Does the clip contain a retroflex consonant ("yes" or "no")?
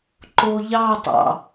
no